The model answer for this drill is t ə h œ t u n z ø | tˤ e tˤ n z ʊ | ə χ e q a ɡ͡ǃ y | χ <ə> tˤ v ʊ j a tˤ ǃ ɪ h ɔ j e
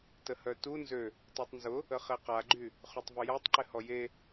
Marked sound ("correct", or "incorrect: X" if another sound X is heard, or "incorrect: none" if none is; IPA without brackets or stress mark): incorrect: ø